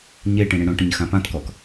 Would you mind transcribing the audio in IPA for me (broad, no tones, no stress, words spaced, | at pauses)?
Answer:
ɲe ʈĩɽĩɽõʈə̃ɲ xãpãtkɔk